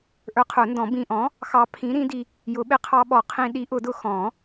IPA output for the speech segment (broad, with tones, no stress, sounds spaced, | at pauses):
ʔ ə˞˨˥ qʰ ʊ˨˩˦ n d ɔ̃˨˩˦ b ĩ˧ ʔ ɔ̃˨˥ | x ɑ˧ pʰ ĩ˨˥ ɾ ĩ˨˥ d i˧ | j ʊ˨˩˦ ɓ ɪ˨˥ qʰ ɑ˧ ɓ ɔ˨˩˦ qʰ ĩ˧ ɗ i˨˥ ʔ ʊ˨˩˦ d ʊ˧ x ɔ̃˨˩˦